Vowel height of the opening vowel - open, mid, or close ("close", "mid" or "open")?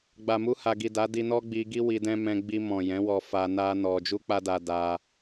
open